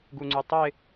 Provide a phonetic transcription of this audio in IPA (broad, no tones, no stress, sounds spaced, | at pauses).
ɡ u ŋ͡ǀ y tˤ œ ɪ̯